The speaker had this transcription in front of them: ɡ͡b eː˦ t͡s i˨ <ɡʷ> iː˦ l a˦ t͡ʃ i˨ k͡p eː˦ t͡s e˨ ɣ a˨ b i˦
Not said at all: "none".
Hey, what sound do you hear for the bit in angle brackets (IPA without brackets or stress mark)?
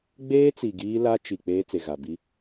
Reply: ɡ